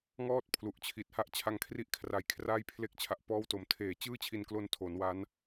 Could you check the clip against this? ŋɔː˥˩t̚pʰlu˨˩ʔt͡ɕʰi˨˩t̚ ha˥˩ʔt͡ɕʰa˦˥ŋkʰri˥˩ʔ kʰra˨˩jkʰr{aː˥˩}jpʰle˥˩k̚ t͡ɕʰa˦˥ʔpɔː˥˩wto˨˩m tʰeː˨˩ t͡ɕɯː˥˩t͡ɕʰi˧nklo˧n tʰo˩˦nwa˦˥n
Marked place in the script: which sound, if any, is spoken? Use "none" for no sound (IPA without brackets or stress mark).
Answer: aː˥˩